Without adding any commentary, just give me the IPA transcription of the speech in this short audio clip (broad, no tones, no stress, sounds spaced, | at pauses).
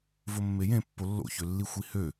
v o mː e j ẽ pː o lː o̰ ç ø lː i xʷ i h ø